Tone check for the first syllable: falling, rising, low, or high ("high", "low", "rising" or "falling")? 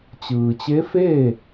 low